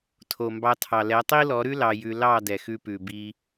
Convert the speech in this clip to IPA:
tʰ o˨ m b ɑ˧ tʰ ɑ˨ l ɛ˨˦ tˤ i˦ l ɔ˨˦ ɾ ʉ˦ l ɑ˧ j ʉ˧ l ɑ˦˨ d ɛ˨ x ʉ˧ p ʉ˨ b i˧

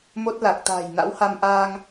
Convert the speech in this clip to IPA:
m o˦˥ t̚ l a˨˩ k̚ t̪ a̤ː˨˩ j n a̰˧˥ w h a˧ m ʔ aː˧ ŋ

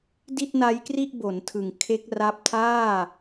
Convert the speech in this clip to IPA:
d i˥˩ t̚ n a˦˥ j k r i˥˩ ʔ b o˩˦ n tʰ ɯ˨˩ ŋ kʰ e˦˥ k̚ r a˦˥ p̚ tʰ aː˥˩

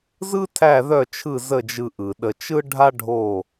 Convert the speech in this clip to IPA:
z ɯ˥ tʰ æ˥˨ ð œ˥˨ t͡ʃʰ ɯ˥˨ z ə˥˨ d͡ʒ ɯ˧ ʔ ɯ˩ ɗ ə˧ t͡ʃ ɯ˥ ɖʱ a˥ ɖʱ o˥˨

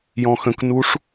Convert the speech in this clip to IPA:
j ɔ̃ x ə̃ k n u ʂ

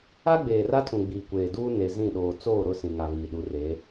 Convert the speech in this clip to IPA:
a˦ ɡ͡b eː˨ r a˦ tʰ ũ˨ ɡ͡b iː˨ kʷ eː˨ d uː˦ n e˨ z ĩ˦˨ ɗ oː˨ t͡s oː˦˨ ɾ ʊ˦˨ s ĩ˨ ŋ a˨ β iː˨ ɗ u˨˦ r e˨˦

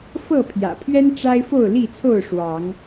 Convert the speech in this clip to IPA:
f ɤ˥˨ pʰ j ä̰˨˩ pʰ ɥ ɛ˦ n ʈ͡ʂ a˦ ɪ̯ f o˥˨ ʊ̯ l i˥˨ t͡sʰ o˥˨ ʊ̯ ʂ w ɑ˨˦ ŋ

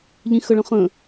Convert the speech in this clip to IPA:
ʎ ĩ x ə ɭ ə̃ χ ə̃

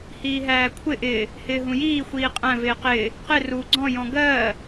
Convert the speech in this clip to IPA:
h iː ɦ æː kʷʰ ɪ ʔ ɪː | h ɪː ɦ ũ j iː xʷ iː qʼ æ̃ v ɪː q ɪː | q ɪ r u ɡ͡ǀ ɔ̃ j ɔ̃ ɡ ɜː

